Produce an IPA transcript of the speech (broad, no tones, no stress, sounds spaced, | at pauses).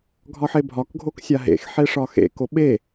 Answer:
ɡʱ ɒ ħ e bʱ ɒ k ɡʱ o k sʲ a ɦ ḛ x ħ e ʂ ɒ x ḛ k o ɓ e